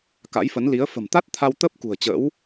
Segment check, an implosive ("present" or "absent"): absent